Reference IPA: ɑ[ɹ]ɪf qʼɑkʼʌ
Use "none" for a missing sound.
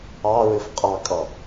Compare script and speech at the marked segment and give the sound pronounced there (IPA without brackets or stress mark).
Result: ɹ